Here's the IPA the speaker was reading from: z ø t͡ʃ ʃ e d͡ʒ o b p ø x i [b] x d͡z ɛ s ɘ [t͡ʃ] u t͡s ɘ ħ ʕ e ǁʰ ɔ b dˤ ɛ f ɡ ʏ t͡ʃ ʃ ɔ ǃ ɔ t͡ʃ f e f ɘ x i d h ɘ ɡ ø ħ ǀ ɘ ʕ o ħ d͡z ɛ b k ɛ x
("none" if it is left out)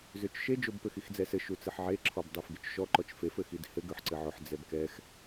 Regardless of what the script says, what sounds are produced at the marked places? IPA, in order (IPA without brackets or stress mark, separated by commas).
none, ʃ